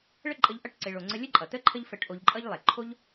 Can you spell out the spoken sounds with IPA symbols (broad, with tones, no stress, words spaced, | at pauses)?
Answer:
ɭə˦ǃʼə˧ʎ ʔʌ˦˨ʈǀe˨ɭo˨ŋ͡ǀə˧ lʲə˦ǃʼʌ˨t̪ə˦ ǃʰə˦ʎfə˧ʈ ʔo˧ʎǃʼʌ˦ʎlˠe˨ ǃʰo˦ʎ